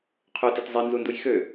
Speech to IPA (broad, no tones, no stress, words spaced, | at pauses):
qʰøtet zˤinzunduj xø